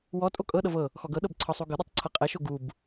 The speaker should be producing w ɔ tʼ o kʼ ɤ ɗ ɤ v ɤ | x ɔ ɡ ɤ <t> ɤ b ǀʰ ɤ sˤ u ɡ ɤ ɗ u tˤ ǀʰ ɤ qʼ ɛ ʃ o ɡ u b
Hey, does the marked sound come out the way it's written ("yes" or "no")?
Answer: no